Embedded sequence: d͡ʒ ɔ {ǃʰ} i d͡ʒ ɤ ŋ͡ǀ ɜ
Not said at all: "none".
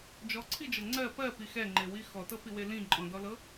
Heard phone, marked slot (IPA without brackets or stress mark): ǀʰ